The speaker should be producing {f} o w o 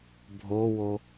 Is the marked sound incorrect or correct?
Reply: incorrect: bʱ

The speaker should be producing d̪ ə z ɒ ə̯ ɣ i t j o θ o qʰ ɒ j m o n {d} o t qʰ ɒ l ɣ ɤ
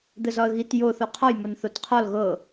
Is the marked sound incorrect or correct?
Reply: incorrect: θ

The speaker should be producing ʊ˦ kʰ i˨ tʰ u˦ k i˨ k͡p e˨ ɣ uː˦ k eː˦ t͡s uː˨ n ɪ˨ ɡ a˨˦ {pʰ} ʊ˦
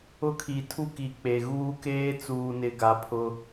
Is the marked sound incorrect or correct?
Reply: correct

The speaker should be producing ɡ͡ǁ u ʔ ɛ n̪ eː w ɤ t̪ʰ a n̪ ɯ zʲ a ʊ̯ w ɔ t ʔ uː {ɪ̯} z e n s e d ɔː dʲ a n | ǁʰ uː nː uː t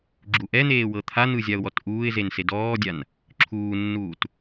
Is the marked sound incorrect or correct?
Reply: correct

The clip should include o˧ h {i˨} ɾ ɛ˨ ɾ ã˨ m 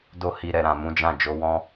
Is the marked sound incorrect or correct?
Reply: correct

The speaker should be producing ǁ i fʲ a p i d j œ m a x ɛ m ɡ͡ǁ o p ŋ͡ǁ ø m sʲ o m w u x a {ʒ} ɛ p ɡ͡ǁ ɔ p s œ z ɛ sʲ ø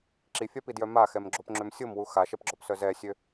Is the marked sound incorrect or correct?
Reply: incorrect: ʃ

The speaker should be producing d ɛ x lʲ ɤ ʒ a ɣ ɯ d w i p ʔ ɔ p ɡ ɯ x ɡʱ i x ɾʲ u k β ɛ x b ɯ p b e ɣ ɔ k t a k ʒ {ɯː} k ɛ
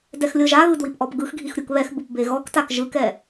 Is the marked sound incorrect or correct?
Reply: incorrect: ɯ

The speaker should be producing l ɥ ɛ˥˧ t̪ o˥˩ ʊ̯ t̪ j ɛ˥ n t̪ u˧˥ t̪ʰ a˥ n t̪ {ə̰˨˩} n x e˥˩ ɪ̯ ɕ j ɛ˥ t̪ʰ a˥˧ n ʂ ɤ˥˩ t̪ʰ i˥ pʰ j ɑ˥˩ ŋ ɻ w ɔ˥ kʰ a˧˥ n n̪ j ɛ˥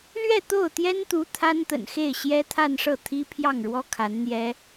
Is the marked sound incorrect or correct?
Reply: correct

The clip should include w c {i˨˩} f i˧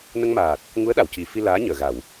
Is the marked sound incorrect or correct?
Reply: correct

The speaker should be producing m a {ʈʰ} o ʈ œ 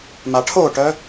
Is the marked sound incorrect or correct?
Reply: correct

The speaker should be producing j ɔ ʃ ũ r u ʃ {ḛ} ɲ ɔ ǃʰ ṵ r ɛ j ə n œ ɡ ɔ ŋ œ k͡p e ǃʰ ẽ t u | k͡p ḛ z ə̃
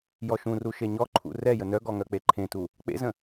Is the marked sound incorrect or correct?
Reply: incorrect: e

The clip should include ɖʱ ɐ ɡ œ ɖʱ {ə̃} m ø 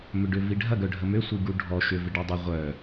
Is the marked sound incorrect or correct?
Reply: incorrect: ə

